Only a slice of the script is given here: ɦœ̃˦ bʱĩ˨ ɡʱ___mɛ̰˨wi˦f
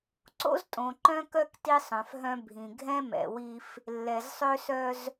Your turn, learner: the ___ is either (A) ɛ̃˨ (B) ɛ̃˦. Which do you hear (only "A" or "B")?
B